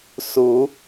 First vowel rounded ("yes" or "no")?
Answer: yes